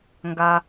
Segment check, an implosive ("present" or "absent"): absent